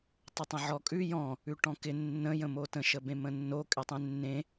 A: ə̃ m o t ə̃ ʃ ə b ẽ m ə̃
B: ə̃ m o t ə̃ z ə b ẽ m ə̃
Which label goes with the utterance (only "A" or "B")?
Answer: A